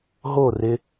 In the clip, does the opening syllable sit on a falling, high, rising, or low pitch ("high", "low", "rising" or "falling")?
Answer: falling